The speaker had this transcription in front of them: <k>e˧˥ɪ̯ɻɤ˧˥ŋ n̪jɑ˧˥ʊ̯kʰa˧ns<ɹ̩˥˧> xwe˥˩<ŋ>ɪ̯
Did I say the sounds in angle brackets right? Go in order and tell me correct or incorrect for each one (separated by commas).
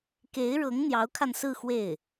correct, correct, incorrect